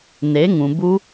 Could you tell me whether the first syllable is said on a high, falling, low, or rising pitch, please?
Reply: rising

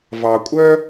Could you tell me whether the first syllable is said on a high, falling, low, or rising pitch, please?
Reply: low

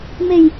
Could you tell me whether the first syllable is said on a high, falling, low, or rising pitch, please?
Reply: low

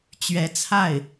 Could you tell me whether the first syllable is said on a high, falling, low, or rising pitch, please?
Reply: rising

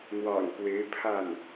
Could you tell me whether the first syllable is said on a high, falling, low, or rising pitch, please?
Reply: low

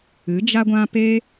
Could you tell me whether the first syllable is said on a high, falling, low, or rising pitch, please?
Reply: rising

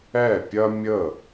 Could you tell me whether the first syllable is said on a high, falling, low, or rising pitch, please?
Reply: falling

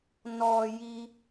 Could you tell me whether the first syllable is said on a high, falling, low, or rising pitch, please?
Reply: low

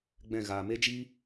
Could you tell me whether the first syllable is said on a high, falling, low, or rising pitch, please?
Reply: falling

